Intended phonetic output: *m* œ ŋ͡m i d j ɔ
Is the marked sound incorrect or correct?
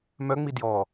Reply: correct